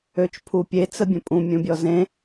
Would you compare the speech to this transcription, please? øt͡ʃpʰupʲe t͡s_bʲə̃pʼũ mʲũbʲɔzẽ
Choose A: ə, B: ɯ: A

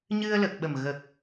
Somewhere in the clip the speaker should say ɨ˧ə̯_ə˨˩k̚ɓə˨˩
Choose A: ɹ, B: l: B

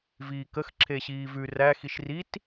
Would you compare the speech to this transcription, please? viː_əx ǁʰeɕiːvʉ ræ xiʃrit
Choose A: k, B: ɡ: A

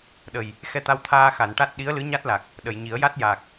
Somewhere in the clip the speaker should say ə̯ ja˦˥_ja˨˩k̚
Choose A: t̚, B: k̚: A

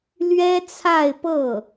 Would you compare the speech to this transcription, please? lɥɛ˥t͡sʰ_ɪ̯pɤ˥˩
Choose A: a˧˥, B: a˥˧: B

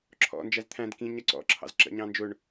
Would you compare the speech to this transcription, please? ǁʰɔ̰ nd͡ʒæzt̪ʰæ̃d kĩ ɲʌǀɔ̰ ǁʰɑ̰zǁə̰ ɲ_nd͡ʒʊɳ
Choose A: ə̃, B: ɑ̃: B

